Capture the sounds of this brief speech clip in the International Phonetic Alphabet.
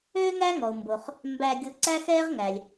øː˥ ŋ æ˥ ŋ ɔ˩ o̯ m b o˩ χ | m b æ˧ ɡʲ o˧ ǀ æ˥ x ɛː˥ ʁ ŋ æ˩ lʲ

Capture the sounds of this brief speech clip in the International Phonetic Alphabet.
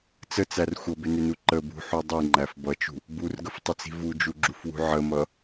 t͡s ə t͡s æ r xʷ ʌ b ɪ n ɪ n u ǃ ə b ṳ ħ u dˤ i ŋ͡ǃ æ f b ʌ t͡ʃ ṳ | b u r ɡ ə f tˤ ə t͡s i̤ v u d͡ʒ u ɡ͡ǁ u f w ṳ ʕ ə m ʌ

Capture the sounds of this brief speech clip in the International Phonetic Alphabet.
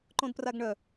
ǃ õ d p r a ɡ ɳ œ

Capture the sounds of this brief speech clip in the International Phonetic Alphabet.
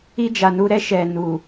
i˦ d͡ʒ a˨ n u˦ ɾ ɛ˦ ʃ ɛ˨ n u˨

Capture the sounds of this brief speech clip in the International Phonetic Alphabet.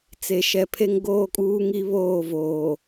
t͡s e˨ ʃ ɛ˨ pʰ e˦ ŋ ɡ oː˦ kʼ uː˦ ŋ i˦ β oː˦˨ v oː˨

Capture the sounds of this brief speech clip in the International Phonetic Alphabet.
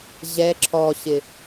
ʑ ɛ ǁʰ ɔ ɕ ɪ

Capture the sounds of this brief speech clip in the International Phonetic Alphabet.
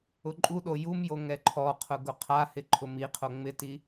ʊ ǃʼ u ɗ o j u m j o ŋ ɛ ǃʰ ɔ qʰ ʊ ɡ ʊ qʰ a h ɪ ǃʰ ʊ m i qʰ o ŋ͡m ɪ t i

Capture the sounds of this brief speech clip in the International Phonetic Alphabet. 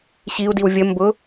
ɕ i u̯ d i w vʲ ə m b ʊ

